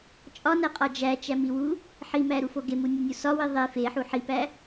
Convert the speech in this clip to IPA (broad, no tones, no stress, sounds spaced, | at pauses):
t͡ʃʼ ɒ n æ qʼ ɒ d͡ʒ æ t͡ʃ æ m i w u | ħ i m æ ɾ u f o ɡ e m u nʲ u nʲ u s ɒ w i ðˤ e f e ħ u ħ i p æ